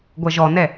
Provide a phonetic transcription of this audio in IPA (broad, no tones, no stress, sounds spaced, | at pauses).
ɡʷ ɜ ʒ ɔ n ɛ